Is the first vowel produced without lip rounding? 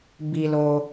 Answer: yes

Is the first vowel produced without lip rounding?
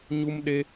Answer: no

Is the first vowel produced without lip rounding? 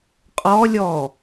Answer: no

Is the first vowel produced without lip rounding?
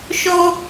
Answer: no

